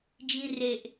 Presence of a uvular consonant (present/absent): absent